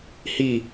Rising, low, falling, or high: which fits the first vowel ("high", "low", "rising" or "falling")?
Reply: falling